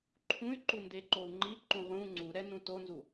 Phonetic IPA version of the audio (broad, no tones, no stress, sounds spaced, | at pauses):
ǃʰ ũ y̯ ǃ u n d e ǃ o u̯ ŋ͡ǃ i ǃ ũ ʁ ũ ŋ͡ǀ u ɾ ɛ n ũ t o n z u